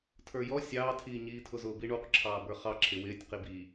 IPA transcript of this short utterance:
tʰə˞jɔ sʲɑːtʰiːɲiːtʰʊ zʊːbiɳuq ǁʰɑːbə˞χɑ ǁʰɪwɪːtʲ qibi

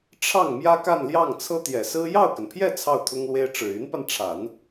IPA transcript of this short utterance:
ʈ͡ʂʰɑ˥˩ŋ mjä˥ka˥˧nljɑ˥˩ŋt͡sʰɤ˥ t̪jɛ˨˩sɹ̩˥ jɑ˥˩ʊ̯kə˩npʰjɛ˥˧ t͡sʰɑ˥˩ʊ̯t̪ʰʊ˥ŋlwe˥ɪ̯ ʈ͡ʂɻ̩˨˩y˧˥npa˧nʈ͡ʂʰa˨˩˦n

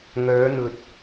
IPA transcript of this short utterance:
ŋœː˨˧n̪ɵ˨t̚

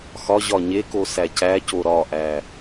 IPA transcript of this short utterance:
xɒ ʑɒɲeko sæcæco ɾɒʔæ

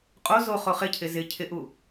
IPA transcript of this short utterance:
qʼo zo χoχɪcʰɪ zɪ cʰɪʔu

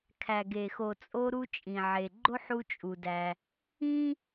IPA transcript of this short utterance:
kʰæ˩ɡe˩ xo˩t͡sʼo˧ɾu˧ t͡ʃʼĩ˩ʕe˩ɡ͡ǃo˥ħ u˧t͡ʃʼu˩dæ˩ | ĩ˥

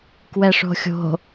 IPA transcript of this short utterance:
kwɛʂo̤xʲo̤

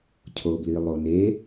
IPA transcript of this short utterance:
cʰoblilˠone

